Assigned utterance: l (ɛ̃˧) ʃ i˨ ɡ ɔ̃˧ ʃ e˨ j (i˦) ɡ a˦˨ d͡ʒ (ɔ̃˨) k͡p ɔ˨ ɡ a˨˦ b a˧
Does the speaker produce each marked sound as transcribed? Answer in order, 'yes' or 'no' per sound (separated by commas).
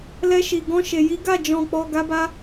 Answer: no, no, yes